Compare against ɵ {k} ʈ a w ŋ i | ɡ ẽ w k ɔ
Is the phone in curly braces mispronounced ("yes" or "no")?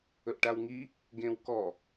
yes